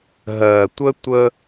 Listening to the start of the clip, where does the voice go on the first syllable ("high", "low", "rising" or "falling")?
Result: low